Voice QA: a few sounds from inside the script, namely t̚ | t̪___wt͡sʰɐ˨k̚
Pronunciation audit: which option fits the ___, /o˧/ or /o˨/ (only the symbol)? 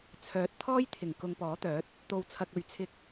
o˨